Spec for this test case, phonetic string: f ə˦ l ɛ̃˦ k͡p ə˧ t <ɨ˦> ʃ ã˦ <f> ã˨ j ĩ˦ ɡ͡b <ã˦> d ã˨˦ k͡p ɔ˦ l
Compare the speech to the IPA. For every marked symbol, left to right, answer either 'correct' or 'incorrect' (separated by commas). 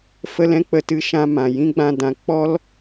correct, incorrect, incorrect